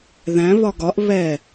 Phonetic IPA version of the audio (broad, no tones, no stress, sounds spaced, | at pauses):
ð æ̃ β ɒ ɡ ɒ ʔ β ɛ